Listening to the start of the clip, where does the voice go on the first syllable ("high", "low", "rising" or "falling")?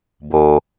low